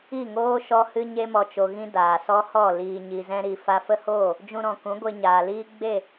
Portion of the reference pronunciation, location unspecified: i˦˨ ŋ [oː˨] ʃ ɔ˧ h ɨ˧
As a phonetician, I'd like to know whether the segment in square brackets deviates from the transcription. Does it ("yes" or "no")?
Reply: yes